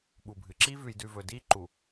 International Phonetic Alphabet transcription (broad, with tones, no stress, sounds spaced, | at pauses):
ɓ u˨ bʱ ɨ˨ ǁ i˦ v ʉ˨ j d ʉ˨ v ɵ˨ d i˦ ǃ u˨